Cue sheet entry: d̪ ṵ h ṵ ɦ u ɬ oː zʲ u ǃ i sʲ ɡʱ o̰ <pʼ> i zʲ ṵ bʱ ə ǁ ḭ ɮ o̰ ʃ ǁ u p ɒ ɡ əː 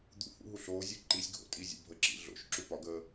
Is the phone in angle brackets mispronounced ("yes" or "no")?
yes